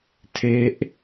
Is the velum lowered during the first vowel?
no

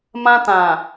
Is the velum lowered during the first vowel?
yes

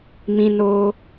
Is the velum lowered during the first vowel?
yes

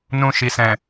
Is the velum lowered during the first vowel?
yes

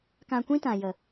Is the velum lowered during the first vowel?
yes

